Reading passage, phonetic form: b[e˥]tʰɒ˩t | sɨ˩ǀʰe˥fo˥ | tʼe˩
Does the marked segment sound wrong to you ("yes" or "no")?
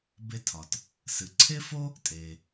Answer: no